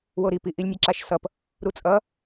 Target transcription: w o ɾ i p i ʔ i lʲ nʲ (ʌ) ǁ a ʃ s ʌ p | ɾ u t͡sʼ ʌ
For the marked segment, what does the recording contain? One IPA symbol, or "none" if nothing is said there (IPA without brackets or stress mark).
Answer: ʌ